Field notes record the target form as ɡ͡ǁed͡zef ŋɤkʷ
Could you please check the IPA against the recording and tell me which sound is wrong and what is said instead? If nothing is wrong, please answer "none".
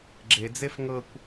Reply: none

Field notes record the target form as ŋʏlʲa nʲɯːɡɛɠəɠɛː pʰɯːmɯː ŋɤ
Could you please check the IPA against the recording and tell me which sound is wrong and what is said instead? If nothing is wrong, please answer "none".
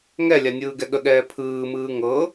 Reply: ʏ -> ɛ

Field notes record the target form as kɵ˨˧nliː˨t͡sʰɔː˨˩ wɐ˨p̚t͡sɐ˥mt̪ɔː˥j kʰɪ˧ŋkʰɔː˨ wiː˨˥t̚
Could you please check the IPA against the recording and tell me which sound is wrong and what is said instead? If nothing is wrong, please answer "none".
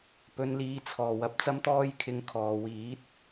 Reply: k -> p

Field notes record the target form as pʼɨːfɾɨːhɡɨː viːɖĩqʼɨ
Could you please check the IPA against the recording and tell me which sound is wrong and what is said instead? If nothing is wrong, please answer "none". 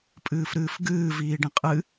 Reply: h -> f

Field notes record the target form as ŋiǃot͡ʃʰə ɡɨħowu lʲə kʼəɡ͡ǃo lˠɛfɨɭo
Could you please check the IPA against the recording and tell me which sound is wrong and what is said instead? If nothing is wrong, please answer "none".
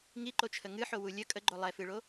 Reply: ɡ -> ŋ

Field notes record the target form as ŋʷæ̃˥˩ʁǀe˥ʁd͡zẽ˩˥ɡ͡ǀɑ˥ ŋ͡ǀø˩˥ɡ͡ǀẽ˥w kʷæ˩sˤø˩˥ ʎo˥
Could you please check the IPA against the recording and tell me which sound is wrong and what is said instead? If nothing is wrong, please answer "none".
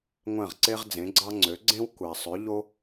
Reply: none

